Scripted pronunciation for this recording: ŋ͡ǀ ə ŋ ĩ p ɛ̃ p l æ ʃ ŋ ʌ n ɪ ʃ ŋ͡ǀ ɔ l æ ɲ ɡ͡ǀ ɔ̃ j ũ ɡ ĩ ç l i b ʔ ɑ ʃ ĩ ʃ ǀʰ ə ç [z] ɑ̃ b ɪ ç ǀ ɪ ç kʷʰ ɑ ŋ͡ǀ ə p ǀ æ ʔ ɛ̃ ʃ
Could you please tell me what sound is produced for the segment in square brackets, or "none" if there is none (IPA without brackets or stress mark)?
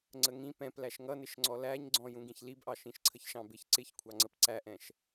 ʃ